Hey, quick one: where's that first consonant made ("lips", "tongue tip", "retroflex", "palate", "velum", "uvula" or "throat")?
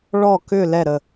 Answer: retroflex